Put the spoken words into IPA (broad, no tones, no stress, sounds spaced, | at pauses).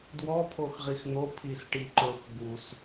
d w ɔ pʰ o x ʁ i x n̪ o pʰ i s ʈ i ǃ ɵ x b u s